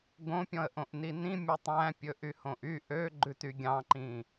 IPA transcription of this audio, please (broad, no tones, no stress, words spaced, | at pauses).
ɡõpʲɔ̃ə̯ʔõʔni nĩmʲɔtˤ æ̃pʲɵ ʔyhõʔy ʔø ɡ͡ǃʉtyɡʲɑ̃ǃĩ